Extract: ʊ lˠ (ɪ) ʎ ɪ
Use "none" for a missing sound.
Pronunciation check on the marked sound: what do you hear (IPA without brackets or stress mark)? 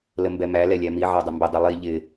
i